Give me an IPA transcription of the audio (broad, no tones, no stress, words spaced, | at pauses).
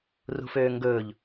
rṳføːŋɡɵːʎ